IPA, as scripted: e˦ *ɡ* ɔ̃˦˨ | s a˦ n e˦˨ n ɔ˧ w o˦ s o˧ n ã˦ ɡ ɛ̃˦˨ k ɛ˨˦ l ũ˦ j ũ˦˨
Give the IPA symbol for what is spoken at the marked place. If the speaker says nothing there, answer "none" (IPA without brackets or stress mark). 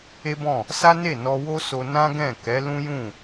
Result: b